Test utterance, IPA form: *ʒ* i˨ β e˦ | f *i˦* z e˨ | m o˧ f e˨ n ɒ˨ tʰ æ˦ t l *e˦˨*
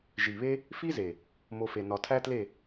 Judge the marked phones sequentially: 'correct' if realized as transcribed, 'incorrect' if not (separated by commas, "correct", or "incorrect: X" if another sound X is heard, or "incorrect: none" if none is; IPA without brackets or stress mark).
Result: correct, correct, correct